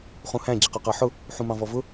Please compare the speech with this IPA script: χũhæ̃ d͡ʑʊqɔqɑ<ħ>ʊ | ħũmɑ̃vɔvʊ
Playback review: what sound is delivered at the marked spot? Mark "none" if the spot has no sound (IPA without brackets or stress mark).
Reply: ħ